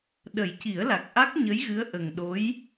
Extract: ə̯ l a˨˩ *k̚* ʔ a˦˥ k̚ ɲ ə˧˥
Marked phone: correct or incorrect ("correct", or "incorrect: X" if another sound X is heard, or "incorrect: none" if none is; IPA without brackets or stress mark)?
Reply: correct